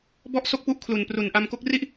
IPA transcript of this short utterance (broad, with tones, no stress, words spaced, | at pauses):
bɔ˥˩ʔso˥˩k̚pu˦˥ʔ kʰlu˨˩npru˨˩n ʔa˧mko˦˥k̚ri˥˩ʔ